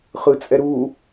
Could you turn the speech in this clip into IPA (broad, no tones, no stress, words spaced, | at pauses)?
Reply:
χɯt͡sʼɛ ɾu